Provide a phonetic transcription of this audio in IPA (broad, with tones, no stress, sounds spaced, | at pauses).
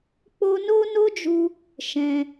k͡p o˦ n o˦ n o˦ d͡ʒ u˧ | ʃ ɛ̃˧